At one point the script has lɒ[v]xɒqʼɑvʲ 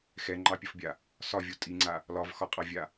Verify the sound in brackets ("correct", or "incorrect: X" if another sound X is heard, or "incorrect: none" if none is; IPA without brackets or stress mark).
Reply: correct